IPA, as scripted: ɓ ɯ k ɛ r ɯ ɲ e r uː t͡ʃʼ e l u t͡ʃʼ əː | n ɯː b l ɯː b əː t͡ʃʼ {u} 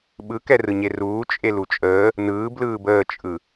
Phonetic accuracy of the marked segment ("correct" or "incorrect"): incorrect